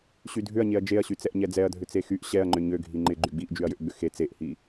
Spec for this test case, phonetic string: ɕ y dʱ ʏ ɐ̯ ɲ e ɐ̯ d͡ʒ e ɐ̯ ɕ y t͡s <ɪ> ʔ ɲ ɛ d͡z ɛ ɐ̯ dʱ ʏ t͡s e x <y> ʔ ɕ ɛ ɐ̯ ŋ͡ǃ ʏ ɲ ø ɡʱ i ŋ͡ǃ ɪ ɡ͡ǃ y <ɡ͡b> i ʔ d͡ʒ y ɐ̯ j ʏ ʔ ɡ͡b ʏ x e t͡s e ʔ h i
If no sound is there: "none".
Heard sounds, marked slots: ɛ, y, ɡ͡b

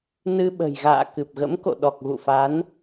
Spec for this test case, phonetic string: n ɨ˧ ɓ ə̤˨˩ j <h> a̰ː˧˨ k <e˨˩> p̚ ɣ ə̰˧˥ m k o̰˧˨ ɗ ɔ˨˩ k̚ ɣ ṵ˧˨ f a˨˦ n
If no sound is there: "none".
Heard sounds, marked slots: ɣ, ɨ˨˩

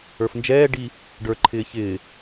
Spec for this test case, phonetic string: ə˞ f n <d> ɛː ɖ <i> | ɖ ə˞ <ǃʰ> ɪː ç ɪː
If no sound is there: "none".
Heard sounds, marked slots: d͡ʒ, i, ǃʰ

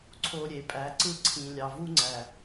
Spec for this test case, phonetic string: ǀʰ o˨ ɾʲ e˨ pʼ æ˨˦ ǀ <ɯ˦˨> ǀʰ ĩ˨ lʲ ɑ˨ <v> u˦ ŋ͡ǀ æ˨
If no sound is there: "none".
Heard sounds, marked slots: ɯ˦, v

